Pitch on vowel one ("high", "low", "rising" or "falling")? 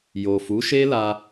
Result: low